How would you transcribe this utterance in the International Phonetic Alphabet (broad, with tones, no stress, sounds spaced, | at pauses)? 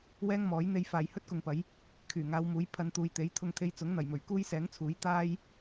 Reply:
w ɛː˥ ŋ m ɔː˨˥ j n̪ e˧ j f aː˨ j h ɵ˥ t̚ k ʊ˨˧ ŋ p ɐ˨˥ j | kʰ yː˨˩ ŋ aː˨˧ w m uː˨˥ j pʰ ɐ˨˧ n t̪ uː˨ j t̪ e˨˥ j t̪ʰ ʊ˧ ŋ t̪ʰ e˧ j t͡s ʊ˨˥ ŋ n̪ ɐ˨˩ j m ɵ˨˩ ɥ k uː˥ j s ɛː˨˥ ŋ t͡sʰ uː˨˥ j t̪ aː˥ j